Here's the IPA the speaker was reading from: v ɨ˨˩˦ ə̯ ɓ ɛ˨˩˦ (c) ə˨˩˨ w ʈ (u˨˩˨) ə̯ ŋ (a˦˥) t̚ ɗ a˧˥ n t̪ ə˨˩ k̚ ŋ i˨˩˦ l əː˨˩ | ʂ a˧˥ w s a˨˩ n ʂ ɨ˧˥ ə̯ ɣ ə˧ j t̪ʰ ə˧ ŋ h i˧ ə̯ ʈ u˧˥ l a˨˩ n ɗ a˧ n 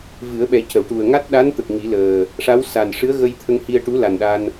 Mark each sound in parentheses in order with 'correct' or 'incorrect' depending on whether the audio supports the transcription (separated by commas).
correct, incorrect, correct